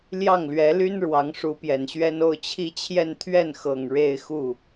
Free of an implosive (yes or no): yes